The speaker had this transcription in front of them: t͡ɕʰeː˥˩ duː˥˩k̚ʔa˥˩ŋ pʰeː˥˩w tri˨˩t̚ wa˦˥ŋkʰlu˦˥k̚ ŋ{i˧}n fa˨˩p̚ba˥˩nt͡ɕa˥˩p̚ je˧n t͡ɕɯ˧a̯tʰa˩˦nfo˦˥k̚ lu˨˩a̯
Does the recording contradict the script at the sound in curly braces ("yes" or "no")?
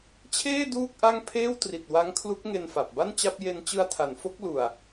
yes